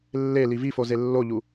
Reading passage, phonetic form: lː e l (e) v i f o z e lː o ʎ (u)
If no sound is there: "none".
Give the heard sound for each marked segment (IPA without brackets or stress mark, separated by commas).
i, u